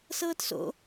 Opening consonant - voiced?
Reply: no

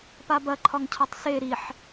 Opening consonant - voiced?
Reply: no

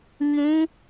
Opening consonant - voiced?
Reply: yes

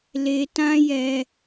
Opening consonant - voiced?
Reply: yes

